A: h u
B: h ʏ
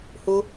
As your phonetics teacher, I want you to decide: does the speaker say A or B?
A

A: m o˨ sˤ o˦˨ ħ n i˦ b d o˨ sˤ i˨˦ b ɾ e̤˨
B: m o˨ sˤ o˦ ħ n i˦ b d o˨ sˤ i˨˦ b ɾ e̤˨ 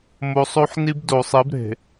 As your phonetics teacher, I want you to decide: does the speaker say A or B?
B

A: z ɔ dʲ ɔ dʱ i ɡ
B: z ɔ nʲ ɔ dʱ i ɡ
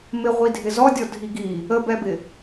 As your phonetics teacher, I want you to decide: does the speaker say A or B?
A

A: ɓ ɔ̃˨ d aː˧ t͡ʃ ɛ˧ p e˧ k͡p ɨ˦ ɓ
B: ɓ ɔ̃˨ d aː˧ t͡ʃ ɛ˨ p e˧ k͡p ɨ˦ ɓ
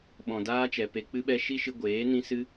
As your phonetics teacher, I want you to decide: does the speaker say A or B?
B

